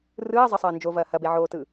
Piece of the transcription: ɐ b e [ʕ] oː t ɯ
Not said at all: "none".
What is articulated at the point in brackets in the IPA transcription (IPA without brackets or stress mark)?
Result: ʕ